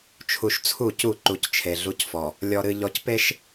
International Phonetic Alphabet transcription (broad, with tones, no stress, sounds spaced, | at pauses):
t͡ʃʰ u˨ ʃ t͡sʰ u˦˨ c u˦˨ ǃ u˨ c t͡ʃʰ e˨ ɮ u˦ c f ɔ˨ | lʲ ɔ˨ ɾ ɨ˨ ʎ ɔ˨ c p e˦ ʃ